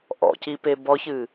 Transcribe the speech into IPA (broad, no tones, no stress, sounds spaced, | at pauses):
ʔ ɔ̰ c i p e b ɔ ç ɨ